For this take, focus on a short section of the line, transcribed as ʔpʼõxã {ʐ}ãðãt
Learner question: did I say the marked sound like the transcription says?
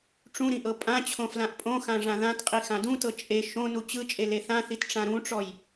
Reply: yes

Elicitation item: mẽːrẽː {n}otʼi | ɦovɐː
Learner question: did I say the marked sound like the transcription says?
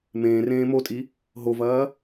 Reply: no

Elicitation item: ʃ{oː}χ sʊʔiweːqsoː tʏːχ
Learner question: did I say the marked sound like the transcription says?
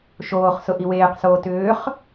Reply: yes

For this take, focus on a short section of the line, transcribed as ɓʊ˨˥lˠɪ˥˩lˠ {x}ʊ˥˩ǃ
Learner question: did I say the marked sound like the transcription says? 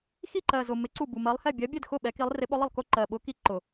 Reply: no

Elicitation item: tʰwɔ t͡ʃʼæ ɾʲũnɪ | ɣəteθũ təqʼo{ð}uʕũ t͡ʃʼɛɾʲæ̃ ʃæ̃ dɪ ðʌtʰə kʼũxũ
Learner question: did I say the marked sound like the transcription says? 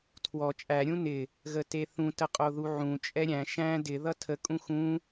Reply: yes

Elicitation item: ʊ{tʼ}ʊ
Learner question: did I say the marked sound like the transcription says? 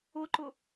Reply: no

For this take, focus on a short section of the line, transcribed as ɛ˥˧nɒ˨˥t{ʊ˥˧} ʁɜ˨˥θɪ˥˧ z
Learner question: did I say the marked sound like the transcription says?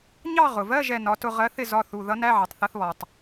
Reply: yes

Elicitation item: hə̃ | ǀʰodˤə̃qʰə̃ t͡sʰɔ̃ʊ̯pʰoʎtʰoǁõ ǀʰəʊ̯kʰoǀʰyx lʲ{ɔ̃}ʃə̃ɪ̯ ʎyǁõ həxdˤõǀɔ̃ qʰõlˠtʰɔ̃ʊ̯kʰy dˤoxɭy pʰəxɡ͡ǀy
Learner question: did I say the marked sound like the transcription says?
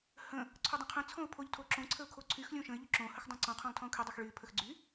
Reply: no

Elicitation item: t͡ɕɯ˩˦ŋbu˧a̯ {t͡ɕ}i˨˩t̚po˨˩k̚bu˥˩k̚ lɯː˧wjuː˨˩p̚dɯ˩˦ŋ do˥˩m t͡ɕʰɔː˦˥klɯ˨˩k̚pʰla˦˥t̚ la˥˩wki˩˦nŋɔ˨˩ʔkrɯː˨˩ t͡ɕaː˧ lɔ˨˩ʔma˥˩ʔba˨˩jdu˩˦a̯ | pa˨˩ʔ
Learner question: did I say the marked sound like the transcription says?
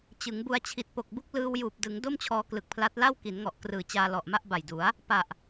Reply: no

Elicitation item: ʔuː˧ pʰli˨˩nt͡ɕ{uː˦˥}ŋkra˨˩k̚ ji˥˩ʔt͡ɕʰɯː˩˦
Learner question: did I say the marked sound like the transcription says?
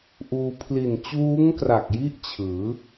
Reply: yes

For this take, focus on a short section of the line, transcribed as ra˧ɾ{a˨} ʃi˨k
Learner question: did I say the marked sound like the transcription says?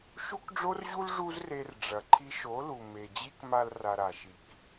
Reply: yes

